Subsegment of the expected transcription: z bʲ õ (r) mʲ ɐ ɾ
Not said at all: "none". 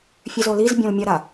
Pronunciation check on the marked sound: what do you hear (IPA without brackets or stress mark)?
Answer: l